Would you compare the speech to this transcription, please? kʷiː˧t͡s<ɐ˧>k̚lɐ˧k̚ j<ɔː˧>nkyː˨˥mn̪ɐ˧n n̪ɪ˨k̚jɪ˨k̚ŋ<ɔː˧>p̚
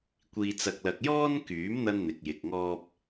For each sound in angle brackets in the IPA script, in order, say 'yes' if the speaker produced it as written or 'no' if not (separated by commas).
yes, no, yes